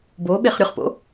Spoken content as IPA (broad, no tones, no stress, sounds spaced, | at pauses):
b o ɓ e χ ɾʲ ʊ χ p o̰